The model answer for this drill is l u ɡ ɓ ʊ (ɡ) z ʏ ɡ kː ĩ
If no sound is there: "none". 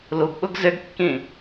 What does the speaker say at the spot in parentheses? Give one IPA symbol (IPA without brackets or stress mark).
ɡ